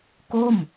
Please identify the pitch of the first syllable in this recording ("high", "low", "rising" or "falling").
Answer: falling